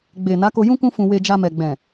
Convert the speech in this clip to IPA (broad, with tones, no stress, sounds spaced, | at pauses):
ɡ͡b e˨ n a˨˦ k o˧ j ũ˦ k ũ˦ f ũ˧ w e˧ d͡ʒ a˧ m ɛ˨ ɡ͡b ɛ̃˨